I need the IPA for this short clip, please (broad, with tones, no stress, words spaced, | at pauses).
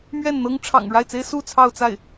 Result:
mɥɛ˥˩nn̪ɤ˥ŋʈ͡ʂʰɑ̰˨˩ŋ ɻa˥˩ɪ̯t͡se˥ɪ̯ su˥˧ t͡sʰɑ˥˧ʊ̯t͡sa˥˩ɪ̯